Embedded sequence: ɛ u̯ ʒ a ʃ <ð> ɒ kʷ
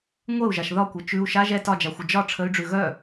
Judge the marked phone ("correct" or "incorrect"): correct